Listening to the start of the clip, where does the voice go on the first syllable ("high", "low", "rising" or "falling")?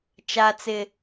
high